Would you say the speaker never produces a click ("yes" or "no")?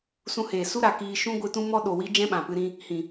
yes